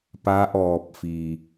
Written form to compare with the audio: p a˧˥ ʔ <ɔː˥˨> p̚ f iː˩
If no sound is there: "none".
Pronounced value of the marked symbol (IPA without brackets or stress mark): ɔː˧˩